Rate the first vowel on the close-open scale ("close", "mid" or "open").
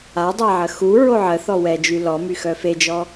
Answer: open